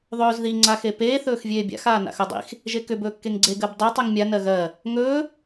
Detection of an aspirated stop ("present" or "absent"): absent